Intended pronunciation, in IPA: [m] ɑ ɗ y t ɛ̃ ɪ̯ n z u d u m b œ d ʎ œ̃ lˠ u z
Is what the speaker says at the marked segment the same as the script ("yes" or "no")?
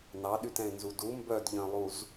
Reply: no